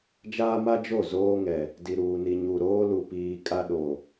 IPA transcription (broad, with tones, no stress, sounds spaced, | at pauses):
d͡ʒ aː˦ m a˦ d͡ʒ o˦˨ z oː˦ ŋ ɛ˨ | d i˨ ɾ uː˨ n i˨ ɲ u˨ ɾ oː˦ l u˨ p iː˨ kʼ a˦ ɗ o˨